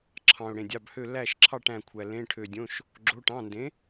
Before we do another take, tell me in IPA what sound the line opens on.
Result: ǁʰ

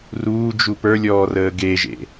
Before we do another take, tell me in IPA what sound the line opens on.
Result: r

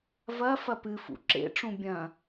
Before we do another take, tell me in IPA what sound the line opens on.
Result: v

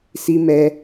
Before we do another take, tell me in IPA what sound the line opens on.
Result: s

